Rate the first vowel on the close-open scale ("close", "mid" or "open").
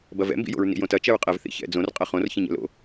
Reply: open